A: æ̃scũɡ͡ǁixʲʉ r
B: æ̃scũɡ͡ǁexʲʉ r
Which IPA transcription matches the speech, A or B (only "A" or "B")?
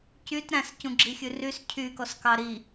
A